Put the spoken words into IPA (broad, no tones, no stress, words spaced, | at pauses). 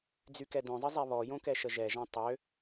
d͡zykɛdœ̃zˤə zˤɛβɔjõ kɛʃəʒɛʒã tˤø